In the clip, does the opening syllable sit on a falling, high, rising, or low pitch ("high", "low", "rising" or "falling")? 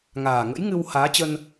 low